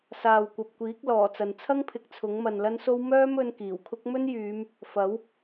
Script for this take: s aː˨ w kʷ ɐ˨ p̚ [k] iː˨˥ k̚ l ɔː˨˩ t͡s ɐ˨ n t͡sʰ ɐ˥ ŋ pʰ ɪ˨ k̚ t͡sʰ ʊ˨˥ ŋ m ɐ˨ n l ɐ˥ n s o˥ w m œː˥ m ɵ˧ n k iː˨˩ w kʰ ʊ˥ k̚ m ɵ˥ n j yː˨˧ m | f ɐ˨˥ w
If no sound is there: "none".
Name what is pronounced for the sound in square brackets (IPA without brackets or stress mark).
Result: kʷ